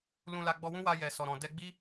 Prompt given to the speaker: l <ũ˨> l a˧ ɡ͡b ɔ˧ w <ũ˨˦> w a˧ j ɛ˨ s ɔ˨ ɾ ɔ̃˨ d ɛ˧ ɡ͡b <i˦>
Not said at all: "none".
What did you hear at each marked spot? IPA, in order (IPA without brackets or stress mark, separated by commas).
ũ˧, ũ˦, i˦